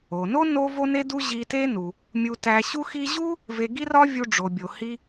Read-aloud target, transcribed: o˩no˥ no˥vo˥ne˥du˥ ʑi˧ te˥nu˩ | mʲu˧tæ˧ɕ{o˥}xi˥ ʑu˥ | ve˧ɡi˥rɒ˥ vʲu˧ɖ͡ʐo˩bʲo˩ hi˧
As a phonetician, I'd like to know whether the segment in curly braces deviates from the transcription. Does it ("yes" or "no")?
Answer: yes